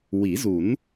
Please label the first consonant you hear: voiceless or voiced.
voiced